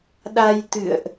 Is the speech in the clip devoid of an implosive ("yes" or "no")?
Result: no